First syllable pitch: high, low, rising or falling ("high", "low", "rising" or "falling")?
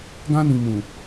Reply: high